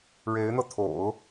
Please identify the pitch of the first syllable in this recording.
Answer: rising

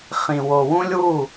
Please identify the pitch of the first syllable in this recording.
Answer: low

